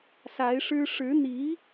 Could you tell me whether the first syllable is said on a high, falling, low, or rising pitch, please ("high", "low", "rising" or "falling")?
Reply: rising